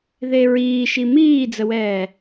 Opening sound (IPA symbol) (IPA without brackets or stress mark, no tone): ð